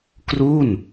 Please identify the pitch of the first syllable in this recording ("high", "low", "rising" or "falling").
falling